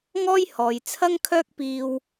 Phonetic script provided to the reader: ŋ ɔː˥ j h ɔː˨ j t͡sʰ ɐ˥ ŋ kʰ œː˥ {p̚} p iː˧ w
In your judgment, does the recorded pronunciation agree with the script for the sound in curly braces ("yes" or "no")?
no